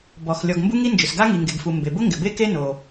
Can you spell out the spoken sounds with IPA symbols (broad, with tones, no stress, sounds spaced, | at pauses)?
b ɔ˩ x lʲ ɔ˩ ɡ m b u˥ ŋ i˥ n d͡ʒ ʊ˩ s ɡ a˥ ŋ i˩ ŋ ɡ e˩ ɡ f u˩ m b e˩ b ʊ˥ ŋ ɡ ɪ˩ b e˥ k e˥ n o˩